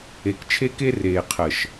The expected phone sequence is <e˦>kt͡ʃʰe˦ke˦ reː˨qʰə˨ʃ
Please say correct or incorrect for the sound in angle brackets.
incorrect